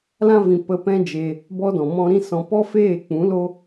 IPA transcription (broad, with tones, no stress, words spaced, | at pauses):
lã˦vĩ˨ pə˧pɛ̃˦d͡ʒe˧ | bɔ˦dɔ̃˨mɔ̃˦ ɾĩ˦sɔ̃˧ pɔ˦feː˦˨k͡pũ˨˦lo˦